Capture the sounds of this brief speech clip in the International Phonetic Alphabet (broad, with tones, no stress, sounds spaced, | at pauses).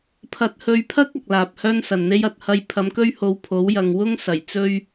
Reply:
pʰ ɐ˧ t̚ h ɵ˧ ɥ pʰ ɐ˥ k̚ ɐ˨ k̚ l aː˨ p̚ h œː˥ n s ɐ˨ n n̪ e˥ j ɐ˨ t̚ h ɐ˥ j pʰ ɐ˨˧ m k ɵ˥ ɥ h o˨˧ w pʰ o˨˥ w j ɐ˨ ŋ w ʊ˥ ŋ s ɐ˨˩ j t͡s ɵ˥ ɥ